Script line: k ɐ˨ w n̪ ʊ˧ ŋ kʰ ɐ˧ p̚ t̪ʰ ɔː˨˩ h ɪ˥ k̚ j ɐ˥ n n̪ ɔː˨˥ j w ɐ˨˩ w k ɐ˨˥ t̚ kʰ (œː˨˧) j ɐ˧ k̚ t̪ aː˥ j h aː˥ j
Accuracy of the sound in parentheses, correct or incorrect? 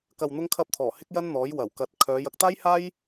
correct